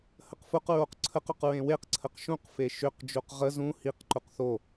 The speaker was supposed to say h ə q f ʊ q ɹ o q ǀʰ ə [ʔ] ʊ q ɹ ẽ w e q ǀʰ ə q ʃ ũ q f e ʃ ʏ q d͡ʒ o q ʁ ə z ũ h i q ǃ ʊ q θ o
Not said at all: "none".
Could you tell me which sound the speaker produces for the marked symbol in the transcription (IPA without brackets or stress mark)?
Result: q